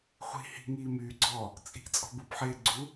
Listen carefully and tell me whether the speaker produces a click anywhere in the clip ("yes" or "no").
yes